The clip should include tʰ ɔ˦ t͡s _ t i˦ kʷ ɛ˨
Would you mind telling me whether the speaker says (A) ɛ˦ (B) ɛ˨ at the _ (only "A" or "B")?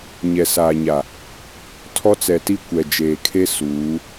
B